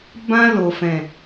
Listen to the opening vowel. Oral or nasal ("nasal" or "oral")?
nasal